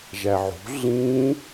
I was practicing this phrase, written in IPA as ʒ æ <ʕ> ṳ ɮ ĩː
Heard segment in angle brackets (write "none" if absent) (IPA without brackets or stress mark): ʕ